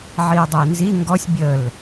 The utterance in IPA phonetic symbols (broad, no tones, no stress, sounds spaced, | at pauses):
ʕ i ə̯ dˤ ɐ ɪ̯ n z i ŋ ɡ ɔ sʲ bʲ ə l